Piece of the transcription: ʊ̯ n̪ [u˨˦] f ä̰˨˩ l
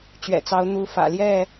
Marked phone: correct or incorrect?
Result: correct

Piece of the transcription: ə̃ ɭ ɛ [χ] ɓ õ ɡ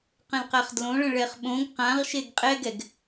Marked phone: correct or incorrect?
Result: correct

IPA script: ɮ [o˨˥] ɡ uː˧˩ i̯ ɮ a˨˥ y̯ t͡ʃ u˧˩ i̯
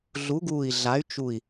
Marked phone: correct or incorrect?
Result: incorrect: u˨˥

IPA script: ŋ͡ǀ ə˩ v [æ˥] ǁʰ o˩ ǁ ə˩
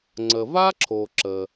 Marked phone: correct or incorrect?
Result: incorrect: a˥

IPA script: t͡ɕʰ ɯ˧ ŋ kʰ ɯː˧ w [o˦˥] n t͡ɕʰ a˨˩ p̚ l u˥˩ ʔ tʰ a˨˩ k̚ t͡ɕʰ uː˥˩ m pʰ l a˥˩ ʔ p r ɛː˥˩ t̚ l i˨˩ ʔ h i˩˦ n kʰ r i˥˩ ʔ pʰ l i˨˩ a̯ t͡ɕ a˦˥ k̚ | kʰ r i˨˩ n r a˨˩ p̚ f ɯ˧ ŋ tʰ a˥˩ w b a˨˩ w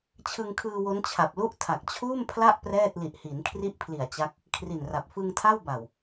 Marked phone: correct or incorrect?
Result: correct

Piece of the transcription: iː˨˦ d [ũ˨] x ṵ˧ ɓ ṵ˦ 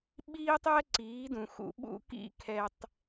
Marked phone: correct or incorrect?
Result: correct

